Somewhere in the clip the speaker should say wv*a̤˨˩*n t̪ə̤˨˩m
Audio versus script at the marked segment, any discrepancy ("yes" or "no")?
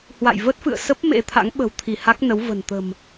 yes